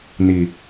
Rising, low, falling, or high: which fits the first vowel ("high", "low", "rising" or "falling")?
low